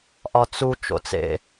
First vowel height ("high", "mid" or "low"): low